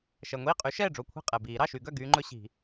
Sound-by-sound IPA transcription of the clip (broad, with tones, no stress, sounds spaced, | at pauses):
ʃ ɛ˩ ŋʷ iː˥˩ qʼ y˨˥ ʃ ɛː˥˩ ɖ͡ʐ o˧˩ kʷʰ i̤˥˩ qʼ ɛ˩ b iː˨˩˦ ɾ ɑ˥˩ ʃ y˨˩˦ ɡ œ˥˩ ɡ yː˦ ŋ͡ǃ ɵ˦ ɕ i̤˨˩˦